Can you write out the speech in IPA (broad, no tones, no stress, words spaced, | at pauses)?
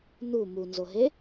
nu munzoɦe